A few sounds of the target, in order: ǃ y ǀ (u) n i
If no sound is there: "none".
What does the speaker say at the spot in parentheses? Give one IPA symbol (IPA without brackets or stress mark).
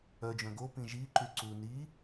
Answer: u